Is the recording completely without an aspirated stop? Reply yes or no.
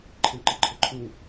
no